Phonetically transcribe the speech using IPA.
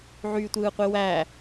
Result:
ʕ yː tʷ ɯː qʷ i w æ

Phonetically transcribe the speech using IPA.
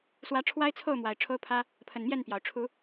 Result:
s w ä˨˦ ʈ͡ʂʰ w a˦ ɪ̯ t͡sʰ o˥˨ ʊ̯ m w a˨˩ ɪ̯ ʈ͡ʂʰ o˦ ʊ̯ pʰ ä˦ | pʰ ə˨˩ n m j ɛ˥˨ n p j ɑ˩ ʊ̯ ʈ͡ʂʰ u˨˦

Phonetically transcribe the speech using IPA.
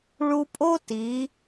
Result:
ɭ u˧ pʼ o˥ t i˩˧

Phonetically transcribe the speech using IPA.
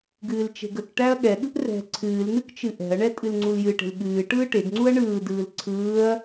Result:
ɡ ɨː l t͡ʃ e̤ ɡ ə k ʈ æ ɐ̯ ɠ ɛ ɠ ɯ ʔ r ɛ̤ ǀʰ ɨː l n̪ ɨ k t͡ʃ ɨ ʔ ɛ̤ ɐ̯ ɳ ɛ tʼ ɨ l ŋ͡ǀ u l j ɨ ʈ e̤ l ɠ ɨː ʈ ɯː ʈ e ɡ ŋ͡ǀ u ɐ̯ ɳ ɯː d ɯː l ǀʰ ɯː ɐ̯

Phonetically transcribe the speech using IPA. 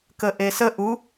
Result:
k ə ʔ e s ə ʔ u

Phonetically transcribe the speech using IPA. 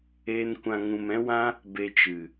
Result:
e˦ n kʷ ã˧ ŋ ũ˧ m ɛ̃˦ w ã˦ | b e˧ t͡ʃ ɨ˨

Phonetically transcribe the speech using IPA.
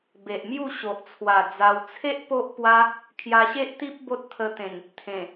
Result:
b e˨ ʔ m j u˥˧ ɕ o˨ ʔ t͡sʰ w a˨˩ d͡z a˧ w t͡sʰ e˦ ʔ p o˦ ʔ p w a˦ | kʰ j a˧ ɕ e˦ ʔ t̪ i˦ p̚ b o˦ t̚ t̪ʰ ə˧ t̪ ẽ˨˩ n | t̪ʰ ẽ˨˩

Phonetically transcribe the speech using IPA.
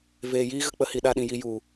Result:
v eː˨ j iː˦ ɣ ə˦ k͡p ə˨˦ h i˨ ɗ a˧ ɗ ĩ˨ j i˧ j u˨

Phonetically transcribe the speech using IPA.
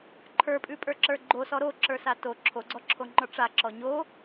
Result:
ǃʰ ə˞ pʼ ʉ pʼ ə˞ ǁ ə˞ ɡ͡ǃ o s ɔ ɾ o ǁ ə˞ s a t o ǁʰ o ɡ͡ǀ ɔ ǁʰ o ŋ͡ǃ ɔ ʈ͡ʂ a ǁ ɔ ɲ o

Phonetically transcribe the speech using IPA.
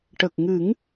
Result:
ʈ ə˨˩ k̚ ŋ ɨ˨˩˦ ŋ

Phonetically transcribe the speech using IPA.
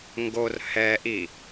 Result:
ŋ ɡ o r h ɛ ʔ i

